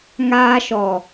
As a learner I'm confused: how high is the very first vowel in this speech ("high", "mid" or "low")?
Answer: low